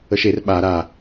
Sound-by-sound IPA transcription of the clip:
əʃer ɓa ɾa

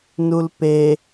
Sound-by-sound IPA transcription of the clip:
nulpe

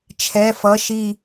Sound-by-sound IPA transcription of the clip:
t͡ʃʰɛ˩˧˩fʌ˩˧˩ʃi˧˩

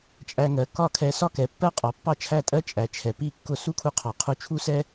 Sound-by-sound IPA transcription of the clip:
t͡ʃʼæ˧ŋɜ˩˥kɒ˥˩ kʰɛ˧sɒ˥kɛ˩˥ pːɜ˥qʼɒ˩˥ pːɑ˥˩t͡ʃʰæ˥˩tʼɜ˥ t͡ʃʼæ˩t͡ʃʰɛ˩ pi˥˩kːʊ˥˩ su˥kʰu˧ qʰɒ˩qʰu˧t͡ʃʰu˥ sɛ˥

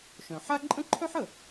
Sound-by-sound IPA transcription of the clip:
ʃœ̃˩ħa˥ ǃʼə̃˥ǃʰœ˥ħ ə˩

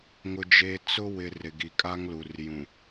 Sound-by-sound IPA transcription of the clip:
ŋʊ˦d͡ʒeː˦ t͡sʊ˦ wɪ˨ rɪ˨ɡi˨kʼaː˦ŋlu˨r jũ˨

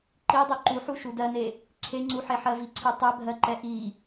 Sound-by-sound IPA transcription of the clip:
ǃidˤi ǃuħuʃu dɜne | ǀʰeŋ͡ǀuħeħɜ viǀʰe tˤɛbʱɜǃɛ ʔi

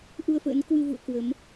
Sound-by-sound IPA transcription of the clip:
ʔu˧ə̯fə̰ː˧˥nkwɨ˧ vṵ˧˨ə̯ kwə˨˦m

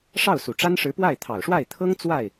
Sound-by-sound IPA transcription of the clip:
ʂɑ˥˩ʊ̯su˨˩ʈ͡ʂa˥n ʂɻ̩˧˥pwa˥˩ɪ̯ t̪ʰɑ˨˩ʊ̯ʂwa˥˩ɪ̯t̪ʰɤ˥ŋ t͡swa˥˩ɪ̯

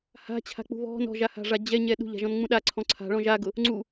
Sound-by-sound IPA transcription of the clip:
ha̤t͡ɕʰa̤k͡pṳ βɔ̤n ɔ̤ʒaha̤ʐa d͡ʑɛɲɛ ɗṳʎa̤ʒɔ̃nŋ͡mũ ɗaǀʰɔ̃ ǀʰa̤ɭɔ̃ ʒaɡʊ | ŋ͡ǀu

